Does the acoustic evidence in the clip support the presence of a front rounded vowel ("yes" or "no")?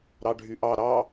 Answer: yes